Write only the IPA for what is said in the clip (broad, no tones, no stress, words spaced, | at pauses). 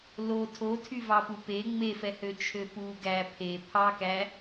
lo tʰotʰyvɑpu pe ŋ͡mefɛhøt͡ʃʰø pu ɡæ pʰe pʰɑkæ